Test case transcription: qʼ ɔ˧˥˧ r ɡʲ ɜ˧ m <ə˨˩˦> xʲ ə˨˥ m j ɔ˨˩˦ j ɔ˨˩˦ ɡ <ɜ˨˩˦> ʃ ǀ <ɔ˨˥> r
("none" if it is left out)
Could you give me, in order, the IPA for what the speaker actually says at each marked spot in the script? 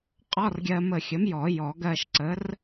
ə˧˩, ɜ˧, ə˨˥

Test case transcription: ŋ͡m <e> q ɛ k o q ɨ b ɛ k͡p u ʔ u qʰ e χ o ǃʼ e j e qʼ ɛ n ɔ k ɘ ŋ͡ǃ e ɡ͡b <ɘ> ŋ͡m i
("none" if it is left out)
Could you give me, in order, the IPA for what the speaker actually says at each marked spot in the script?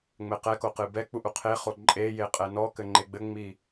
ɘ, ɘ

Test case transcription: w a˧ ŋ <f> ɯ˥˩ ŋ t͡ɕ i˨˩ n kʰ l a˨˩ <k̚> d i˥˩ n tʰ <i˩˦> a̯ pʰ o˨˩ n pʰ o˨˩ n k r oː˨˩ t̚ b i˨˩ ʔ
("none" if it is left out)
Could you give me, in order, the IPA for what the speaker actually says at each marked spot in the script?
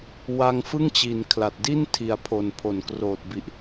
f, t̚, i˩˦

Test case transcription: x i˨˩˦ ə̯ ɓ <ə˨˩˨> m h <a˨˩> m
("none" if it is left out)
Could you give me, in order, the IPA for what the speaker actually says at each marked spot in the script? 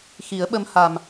ə˧˥, a˨˩

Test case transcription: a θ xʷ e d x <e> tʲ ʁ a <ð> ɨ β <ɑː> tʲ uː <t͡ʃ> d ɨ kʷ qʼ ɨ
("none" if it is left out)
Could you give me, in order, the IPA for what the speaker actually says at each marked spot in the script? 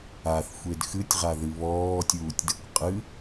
ɨ, ð, ɔː, tʲ

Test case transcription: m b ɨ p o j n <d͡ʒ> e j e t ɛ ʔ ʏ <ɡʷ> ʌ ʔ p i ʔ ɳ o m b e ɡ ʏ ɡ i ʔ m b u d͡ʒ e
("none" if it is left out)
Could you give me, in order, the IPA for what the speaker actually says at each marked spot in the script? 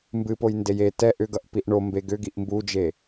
d, ɡ

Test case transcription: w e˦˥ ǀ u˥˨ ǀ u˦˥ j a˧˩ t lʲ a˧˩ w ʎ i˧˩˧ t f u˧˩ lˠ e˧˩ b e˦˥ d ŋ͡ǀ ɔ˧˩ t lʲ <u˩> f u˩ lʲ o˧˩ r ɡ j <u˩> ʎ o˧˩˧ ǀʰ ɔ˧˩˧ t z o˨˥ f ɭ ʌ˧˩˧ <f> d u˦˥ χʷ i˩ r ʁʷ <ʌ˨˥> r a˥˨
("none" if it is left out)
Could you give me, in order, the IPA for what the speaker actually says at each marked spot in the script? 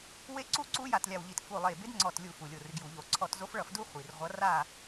u˧˩˧, u˧˩˧, f, ʌ˨˥

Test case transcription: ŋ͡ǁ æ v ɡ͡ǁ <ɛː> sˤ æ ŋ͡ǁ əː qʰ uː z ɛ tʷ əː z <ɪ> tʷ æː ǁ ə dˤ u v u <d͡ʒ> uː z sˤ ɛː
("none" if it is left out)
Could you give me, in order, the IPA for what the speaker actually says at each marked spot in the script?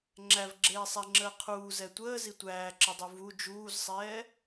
eː, i, d͡ʒ

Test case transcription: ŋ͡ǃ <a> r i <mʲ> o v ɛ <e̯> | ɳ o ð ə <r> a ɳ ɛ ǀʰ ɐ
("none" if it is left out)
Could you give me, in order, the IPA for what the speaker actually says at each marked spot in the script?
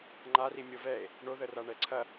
a, mʲ, e̯, r

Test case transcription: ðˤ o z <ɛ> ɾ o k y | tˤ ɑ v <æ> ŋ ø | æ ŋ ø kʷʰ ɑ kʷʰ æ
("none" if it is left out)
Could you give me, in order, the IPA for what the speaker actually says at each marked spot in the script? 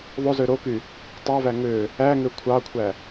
ø, æ

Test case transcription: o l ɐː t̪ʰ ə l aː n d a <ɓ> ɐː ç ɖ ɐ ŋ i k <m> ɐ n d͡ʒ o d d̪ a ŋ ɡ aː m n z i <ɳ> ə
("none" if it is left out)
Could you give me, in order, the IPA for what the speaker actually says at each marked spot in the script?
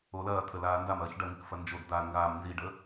m, f, ɖ

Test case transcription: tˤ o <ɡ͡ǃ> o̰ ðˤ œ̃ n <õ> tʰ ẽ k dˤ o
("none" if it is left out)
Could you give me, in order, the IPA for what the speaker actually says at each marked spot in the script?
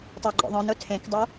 ɡ͡ǃ, o

